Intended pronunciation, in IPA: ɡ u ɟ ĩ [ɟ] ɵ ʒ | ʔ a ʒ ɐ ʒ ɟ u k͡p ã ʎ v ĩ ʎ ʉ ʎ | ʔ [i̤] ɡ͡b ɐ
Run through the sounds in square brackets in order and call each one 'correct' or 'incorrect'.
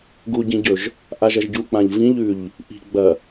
correct, correct

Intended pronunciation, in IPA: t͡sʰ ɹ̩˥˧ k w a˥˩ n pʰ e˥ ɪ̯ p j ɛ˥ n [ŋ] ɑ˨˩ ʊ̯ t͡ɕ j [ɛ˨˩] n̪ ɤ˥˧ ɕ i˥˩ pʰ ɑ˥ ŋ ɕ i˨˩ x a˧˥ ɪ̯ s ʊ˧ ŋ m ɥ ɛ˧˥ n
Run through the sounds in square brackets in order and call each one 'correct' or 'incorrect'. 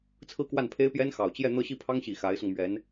incorrect: x, incorrect: ɛ˥˧

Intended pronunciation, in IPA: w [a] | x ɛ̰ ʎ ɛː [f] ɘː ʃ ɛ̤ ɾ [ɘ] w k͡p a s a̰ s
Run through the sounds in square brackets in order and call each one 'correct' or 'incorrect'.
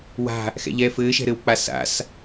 incorrect: a̤, correct, correct

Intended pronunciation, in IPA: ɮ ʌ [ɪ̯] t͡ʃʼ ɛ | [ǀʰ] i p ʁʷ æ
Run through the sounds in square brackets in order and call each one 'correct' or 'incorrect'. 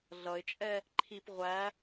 correct, incorrect: ǃʰ

